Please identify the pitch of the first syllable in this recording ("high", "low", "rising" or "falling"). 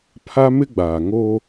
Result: high